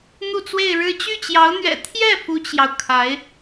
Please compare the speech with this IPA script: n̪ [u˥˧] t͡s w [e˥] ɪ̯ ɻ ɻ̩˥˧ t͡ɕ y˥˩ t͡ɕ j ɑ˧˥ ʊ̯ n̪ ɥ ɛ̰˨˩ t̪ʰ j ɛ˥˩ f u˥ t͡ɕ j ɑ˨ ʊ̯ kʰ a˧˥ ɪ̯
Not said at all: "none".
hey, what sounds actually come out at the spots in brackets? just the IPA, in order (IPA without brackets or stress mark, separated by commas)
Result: u˥˧, e˥˧